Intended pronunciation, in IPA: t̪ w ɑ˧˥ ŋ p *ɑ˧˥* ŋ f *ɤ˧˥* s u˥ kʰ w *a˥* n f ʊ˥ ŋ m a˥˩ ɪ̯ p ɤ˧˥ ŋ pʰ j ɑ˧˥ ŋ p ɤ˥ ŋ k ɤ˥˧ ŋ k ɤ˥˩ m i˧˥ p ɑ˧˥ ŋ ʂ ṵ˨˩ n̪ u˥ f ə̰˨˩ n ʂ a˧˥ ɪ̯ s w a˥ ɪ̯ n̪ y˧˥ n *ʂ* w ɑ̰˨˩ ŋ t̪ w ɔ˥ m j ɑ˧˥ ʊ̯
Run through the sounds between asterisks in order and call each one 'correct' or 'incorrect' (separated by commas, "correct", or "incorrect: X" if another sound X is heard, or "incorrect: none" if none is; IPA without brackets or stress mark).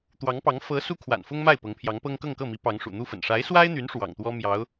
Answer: correct, correct, incorrect: a̰˨˩, correct